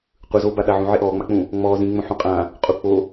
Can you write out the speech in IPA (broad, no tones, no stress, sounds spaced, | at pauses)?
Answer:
qʷ ɯ z oː b a ɗ a ʕ ũ ʕ e ʔ ɔː ŋ͡m a k͡p ũ | ŋ͡m ɔː z ĩ ŋ͡m õ ħ ũ qʼ ã | qʼ u k͡p o